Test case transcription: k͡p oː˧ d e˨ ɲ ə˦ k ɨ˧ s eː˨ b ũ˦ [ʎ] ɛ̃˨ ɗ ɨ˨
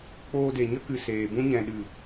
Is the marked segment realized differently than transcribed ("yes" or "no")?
yes